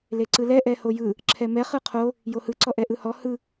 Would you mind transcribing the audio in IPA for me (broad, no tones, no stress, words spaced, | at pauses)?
leǀɯlɛ ʔɛhojɯ | ǁʰɛmɛ χɯqʰo | johɯ ǀɔʔɛʔɯhɔ hɯ